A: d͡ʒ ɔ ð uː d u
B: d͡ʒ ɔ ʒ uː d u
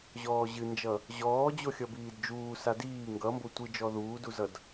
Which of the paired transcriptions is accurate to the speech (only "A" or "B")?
A